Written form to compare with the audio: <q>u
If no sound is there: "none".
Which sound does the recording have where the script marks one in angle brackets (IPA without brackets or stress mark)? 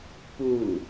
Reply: p